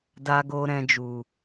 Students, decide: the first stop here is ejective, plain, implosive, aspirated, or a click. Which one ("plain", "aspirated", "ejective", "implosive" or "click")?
plain